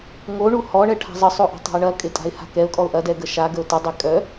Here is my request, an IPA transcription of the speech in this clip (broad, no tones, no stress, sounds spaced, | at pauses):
ŋ o ɳ u h ɔ ɳ ɛ ʈʰ a̤ zˤ ə sˤ o ʔ a̤ tˤ ɔ̤ ɪ̯ ɳ ɐ kʼ ɪ tʼ a̤ ɪ̯ h a̤ k ɛ ʊ̯ kʼ ɔ ʊ̯ ʔ ɐ d ɛ ɡ ə ʃ a ɡ ə ʊ̯ t ə dˤ ɛ kʼ œ